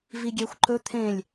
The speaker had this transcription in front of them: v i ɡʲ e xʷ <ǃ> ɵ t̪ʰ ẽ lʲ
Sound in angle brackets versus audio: correct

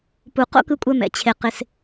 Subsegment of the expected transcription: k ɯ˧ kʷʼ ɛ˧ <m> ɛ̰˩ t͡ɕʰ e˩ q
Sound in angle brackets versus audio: correct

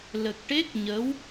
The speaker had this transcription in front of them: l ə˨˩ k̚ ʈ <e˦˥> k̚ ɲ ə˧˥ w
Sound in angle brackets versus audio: correct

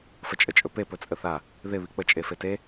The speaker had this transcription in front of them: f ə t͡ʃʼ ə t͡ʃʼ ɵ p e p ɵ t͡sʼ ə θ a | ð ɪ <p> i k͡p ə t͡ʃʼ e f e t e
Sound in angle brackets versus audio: incorrect: β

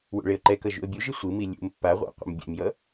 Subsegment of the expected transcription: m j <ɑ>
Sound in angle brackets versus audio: incorrect: ʌ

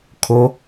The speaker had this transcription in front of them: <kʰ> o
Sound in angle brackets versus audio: correct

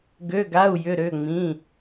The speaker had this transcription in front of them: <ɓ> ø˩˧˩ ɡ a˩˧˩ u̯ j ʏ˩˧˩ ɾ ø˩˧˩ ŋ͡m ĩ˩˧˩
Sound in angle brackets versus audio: incorrect: ɡ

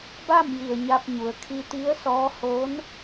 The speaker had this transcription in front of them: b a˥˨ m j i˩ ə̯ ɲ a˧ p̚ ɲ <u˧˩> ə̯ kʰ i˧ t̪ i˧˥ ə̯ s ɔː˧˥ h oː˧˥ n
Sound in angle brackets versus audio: incorrect: u˩˧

